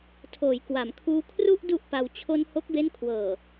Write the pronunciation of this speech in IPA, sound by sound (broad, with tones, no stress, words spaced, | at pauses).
tʰoː˩˦jkwa˩˦mkʰuː˧ kʰru˥˩ʔ du˥˩ʔpa˧w t͡ɕʰo˧nho˦˥k̚be˦˥n kʰwɤː˨˩